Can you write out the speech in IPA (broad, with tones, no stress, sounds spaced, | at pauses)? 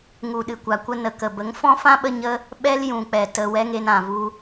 ŋ u˨ ɗ ɨ˨ kʷ a˨ kʷ ə˧ n ə˨ k ə˨ b ə˨˦ ŋ f ɔ̃˦ f ã˦ ɓ ə˧ ɲ ə˦ | ɓ ɛ˦ l j ũ˨ k͡p ɛ˨ t ə˨ w ɛ˦ ŋ e˧ n ã˨ v u˧